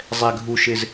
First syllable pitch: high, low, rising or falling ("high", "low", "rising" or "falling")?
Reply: low